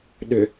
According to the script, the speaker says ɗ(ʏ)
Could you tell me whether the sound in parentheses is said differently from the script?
no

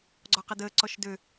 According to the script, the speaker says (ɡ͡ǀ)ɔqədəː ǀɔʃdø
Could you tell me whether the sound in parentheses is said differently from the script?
no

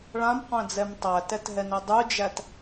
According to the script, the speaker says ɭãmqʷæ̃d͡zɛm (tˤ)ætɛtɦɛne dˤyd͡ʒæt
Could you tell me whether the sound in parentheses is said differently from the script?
no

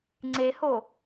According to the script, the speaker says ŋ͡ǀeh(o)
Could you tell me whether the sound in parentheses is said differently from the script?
no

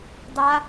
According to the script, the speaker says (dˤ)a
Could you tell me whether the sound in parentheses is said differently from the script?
no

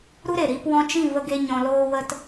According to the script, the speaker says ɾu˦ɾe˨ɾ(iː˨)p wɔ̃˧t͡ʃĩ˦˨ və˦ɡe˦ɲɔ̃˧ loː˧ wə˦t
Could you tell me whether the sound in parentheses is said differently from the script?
yes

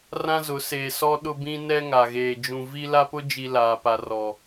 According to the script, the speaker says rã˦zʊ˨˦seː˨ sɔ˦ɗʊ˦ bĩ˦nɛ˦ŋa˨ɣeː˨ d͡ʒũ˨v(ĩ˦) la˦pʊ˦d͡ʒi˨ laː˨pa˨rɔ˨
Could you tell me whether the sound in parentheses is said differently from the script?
yes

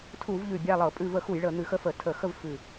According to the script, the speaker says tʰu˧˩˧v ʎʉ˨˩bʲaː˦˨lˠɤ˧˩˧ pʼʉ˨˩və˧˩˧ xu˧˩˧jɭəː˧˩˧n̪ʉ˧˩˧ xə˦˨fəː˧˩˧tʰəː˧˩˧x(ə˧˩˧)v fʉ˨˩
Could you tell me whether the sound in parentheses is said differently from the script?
yes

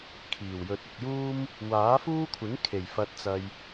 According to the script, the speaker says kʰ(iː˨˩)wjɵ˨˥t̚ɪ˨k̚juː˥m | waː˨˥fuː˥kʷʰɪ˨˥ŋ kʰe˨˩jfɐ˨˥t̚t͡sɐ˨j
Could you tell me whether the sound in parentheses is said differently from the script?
no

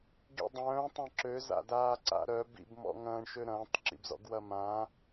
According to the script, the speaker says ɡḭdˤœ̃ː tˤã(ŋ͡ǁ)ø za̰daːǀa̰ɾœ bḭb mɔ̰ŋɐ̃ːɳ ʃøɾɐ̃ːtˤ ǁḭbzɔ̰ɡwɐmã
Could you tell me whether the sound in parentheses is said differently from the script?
yes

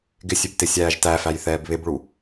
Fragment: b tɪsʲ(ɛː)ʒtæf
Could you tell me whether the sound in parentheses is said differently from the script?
yes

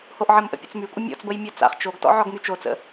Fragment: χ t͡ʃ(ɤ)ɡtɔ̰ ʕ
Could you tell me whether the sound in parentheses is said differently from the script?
yes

